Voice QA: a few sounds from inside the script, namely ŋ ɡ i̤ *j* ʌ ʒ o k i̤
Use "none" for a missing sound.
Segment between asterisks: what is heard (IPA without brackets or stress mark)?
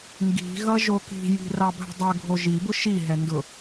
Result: ɣ